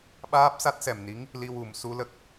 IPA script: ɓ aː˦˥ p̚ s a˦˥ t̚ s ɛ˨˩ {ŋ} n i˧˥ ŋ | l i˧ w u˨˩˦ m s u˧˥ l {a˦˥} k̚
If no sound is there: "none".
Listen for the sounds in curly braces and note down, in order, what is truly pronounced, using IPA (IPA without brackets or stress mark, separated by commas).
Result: m, ə˦˥